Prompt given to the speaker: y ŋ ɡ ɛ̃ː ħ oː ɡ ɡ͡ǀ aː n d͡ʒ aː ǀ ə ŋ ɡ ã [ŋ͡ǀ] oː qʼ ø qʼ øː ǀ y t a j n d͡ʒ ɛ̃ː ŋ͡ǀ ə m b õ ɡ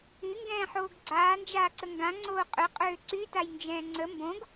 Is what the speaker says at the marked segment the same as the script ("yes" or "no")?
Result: yes